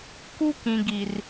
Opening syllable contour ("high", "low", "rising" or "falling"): high